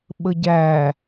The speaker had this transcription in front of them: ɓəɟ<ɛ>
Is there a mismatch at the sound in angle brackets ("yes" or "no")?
yes